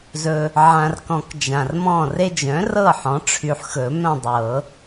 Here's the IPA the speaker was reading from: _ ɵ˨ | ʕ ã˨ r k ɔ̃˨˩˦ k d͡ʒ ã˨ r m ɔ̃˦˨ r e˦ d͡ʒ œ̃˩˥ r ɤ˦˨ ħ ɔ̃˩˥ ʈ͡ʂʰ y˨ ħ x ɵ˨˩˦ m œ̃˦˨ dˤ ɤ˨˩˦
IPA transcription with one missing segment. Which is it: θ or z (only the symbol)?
z